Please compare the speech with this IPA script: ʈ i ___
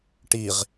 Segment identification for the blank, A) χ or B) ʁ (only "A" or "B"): B